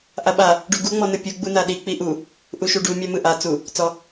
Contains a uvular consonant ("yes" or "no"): no